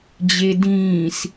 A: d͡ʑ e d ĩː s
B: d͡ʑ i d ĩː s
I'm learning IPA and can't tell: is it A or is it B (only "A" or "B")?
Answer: A